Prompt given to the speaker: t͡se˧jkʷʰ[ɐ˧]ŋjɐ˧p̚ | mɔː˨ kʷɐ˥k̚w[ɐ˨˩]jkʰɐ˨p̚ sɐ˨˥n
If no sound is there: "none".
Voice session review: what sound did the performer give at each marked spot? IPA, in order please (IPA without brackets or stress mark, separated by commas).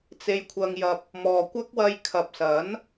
ɐ˧, ɐ˧